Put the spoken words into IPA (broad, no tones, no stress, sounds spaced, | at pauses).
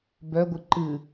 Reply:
b œ ɡʷ ɨ ǃ ɨ